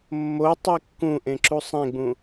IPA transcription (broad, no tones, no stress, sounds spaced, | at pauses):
mː o tˤ i kː ũ ʔ ẽ ǁ u sˤ ẽ ɡ͡b ũ